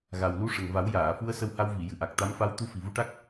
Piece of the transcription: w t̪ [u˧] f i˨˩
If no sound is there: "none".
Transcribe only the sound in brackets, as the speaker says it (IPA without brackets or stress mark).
u˧˥